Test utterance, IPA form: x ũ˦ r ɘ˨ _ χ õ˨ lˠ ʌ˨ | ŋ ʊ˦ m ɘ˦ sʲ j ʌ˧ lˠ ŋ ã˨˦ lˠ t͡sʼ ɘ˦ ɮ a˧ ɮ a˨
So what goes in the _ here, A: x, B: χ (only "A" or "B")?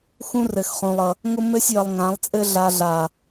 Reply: A